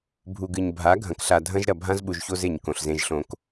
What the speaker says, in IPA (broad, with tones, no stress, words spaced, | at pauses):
bʱu˨ɡɨ˨ɲ bʱa˨˦ ɡʱɐ̃˨kɬa˨dʱɐ̃˦ʒ ɾɐ˨bʱã˦zɓu˨ʒ ço˦ze˨ɲ kõ˨ɬzẽ˦ʒɬõ˦k